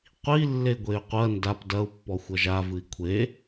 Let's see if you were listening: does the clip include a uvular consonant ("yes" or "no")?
yes